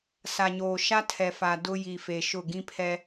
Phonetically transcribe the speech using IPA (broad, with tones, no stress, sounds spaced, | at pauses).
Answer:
s a˨ ɲ oː˨ ʃ a˦ tʰ ɛ˨ f a˨ d ʊ˦ j i˨ f e˨ ʃ ʊ˦˨ ɡ ĩ˦ pʰ ɛ˦